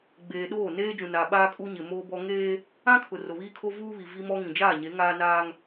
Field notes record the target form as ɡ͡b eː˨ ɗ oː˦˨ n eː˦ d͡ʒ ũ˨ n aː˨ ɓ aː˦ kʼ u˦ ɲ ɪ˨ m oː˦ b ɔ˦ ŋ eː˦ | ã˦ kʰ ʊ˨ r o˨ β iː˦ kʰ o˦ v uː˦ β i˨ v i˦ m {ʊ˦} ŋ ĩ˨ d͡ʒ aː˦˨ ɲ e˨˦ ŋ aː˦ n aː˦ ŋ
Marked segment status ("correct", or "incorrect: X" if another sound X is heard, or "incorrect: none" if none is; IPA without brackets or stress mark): incorrect: ɔ˦